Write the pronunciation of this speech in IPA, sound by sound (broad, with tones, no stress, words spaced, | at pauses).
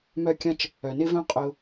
mœ˧kʲɐ̃˧t͡ʃ | œ˨˩nɪ˥vœ̃˥ qʼʊ˧